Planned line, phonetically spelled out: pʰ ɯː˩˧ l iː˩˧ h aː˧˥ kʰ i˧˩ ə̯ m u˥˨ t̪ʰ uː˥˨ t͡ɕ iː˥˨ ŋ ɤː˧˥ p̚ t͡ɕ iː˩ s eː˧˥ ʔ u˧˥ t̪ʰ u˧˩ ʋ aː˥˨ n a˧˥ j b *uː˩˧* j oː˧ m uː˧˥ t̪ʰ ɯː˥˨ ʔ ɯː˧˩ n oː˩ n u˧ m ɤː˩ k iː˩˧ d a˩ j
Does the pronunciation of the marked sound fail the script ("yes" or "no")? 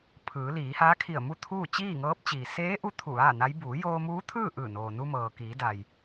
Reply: no